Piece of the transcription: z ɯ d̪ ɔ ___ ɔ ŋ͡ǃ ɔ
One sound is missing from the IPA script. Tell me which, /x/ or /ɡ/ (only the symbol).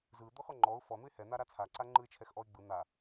x